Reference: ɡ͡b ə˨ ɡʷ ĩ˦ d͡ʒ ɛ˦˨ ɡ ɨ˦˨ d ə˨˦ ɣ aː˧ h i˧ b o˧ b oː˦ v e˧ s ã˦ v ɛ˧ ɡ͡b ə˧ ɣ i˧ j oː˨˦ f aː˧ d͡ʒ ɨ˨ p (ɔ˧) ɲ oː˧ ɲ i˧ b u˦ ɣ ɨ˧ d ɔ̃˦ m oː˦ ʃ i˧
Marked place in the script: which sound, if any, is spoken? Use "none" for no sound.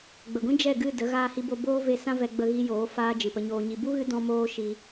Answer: ə˧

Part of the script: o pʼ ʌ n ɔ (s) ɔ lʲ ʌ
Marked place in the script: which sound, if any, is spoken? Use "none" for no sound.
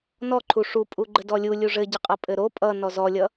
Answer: z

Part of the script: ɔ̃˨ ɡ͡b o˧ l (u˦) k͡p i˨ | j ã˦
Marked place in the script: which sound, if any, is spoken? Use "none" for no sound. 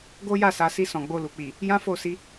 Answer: u˨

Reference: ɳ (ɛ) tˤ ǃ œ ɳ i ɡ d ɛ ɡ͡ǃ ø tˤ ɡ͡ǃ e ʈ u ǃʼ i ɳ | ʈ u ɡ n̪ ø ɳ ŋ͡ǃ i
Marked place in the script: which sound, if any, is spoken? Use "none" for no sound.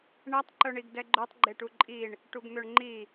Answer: ɛ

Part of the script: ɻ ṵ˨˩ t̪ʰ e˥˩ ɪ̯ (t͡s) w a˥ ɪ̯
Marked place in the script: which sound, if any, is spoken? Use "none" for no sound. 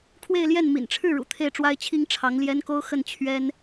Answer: ʈ͡ʂ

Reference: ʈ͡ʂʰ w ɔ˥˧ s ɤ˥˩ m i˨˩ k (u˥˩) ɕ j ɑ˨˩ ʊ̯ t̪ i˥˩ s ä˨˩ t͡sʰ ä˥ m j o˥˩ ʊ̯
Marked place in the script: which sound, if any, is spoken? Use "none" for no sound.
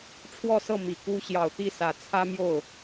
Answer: u˥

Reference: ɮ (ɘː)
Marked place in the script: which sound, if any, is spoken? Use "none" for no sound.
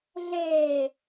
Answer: eː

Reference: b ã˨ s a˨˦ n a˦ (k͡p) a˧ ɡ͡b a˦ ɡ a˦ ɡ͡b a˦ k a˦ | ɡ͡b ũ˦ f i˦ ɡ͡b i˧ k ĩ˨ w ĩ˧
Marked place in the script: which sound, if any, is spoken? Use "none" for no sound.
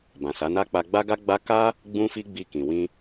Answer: k͡p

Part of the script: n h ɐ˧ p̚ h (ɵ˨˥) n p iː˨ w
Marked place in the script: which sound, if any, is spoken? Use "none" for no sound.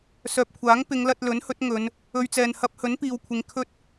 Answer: ɵ˨˥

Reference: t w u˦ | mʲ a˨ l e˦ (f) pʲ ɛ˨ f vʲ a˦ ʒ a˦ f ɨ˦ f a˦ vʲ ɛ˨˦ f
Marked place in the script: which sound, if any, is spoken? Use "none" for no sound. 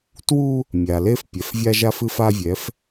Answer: f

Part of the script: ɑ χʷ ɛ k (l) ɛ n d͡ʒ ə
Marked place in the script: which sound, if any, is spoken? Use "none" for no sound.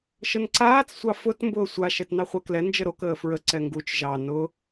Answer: l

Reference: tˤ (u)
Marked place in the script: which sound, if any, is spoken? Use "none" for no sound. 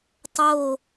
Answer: o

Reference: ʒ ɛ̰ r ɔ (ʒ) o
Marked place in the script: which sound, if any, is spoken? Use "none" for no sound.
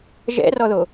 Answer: ð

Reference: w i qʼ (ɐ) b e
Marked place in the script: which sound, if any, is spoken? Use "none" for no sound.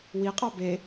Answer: ɑ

